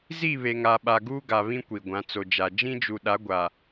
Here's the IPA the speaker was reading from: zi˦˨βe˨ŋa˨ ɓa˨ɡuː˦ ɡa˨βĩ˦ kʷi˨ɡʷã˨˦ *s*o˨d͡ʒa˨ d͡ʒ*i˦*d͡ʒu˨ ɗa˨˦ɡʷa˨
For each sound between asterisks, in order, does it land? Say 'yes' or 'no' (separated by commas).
no, no